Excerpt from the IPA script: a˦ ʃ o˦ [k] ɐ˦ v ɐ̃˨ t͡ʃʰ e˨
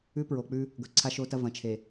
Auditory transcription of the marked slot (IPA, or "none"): t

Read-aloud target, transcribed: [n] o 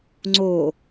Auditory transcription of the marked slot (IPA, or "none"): ŋ͡ǀ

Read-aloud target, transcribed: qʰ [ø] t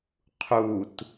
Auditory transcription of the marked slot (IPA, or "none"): u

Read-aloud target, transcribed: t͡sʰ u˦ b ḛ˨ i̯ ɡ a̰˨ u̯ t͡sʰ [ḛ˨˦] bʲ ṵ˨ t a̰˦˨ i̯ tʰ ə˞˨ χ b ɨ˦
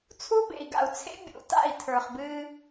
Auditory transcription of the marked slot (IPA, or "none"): ḛ˦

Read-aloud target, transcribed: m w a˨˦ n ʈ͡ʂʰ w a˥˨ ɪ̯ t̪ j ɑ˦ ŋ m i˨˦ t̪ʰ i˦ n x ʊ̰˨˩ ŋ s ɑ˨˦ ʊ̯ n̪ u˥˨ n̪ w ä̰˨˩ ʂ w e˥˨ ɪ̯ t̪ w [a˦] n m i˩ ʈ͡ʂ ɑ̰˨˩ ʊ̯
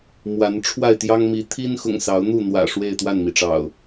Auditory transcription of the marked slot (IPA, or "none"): a˥˨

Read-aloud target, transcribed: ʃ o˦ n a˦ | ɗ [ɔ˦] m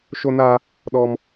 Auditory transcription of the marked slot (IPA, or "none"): ɔ˦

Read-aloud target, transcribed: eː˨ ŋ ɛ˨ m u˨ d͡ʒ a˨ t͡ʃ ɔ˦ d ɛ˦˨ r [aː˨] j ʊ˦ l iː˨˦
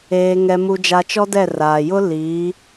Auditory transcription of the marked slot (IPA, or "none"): aː˨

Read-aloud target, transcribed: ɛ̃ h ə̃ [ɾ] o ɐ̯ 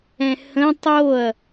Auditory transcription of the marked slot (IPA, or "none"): tˤ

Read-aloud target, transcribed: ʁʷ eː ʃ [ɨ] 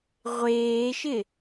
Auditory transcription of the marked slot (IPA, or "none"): ɪ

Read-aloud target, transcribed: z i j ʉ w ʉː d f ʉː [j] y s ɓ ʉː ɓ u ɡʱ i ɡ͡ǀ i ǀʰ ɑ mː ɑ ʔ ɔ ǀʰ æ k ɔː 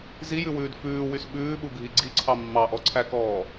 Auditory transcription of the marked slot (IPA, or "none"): w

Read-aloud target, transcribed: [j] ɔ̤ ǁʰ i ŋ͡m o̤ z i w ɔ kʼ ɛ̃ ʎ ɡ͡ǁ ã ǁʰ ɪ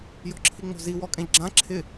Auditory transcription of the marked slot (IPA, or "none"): j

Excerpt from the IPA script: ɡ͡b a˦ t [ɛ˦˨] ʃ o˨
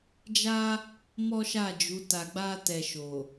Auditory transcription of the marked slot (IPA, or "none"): ɛ˧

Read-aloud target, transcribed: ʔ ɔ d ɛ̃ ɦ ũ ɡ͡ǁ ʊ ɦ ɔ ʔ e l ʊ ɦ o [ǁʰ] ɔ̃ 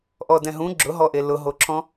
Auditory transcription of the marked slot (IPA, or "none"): ǁʰ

